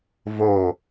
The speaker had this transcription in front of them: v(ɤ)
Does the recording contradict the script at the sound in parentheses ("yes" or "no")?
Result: yes